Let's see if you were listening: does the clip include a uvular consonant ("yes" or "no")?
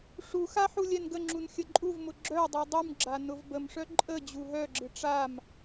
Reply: no